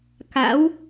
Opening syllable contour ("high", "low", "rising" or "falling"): rising